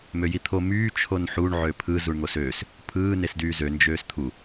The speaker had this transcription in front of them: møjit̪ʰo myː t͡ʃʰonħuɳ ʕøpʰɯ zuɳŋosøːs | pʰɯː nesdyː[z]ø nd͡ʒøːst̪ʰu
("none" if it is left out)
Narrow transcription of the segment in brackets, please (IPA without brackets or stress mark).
z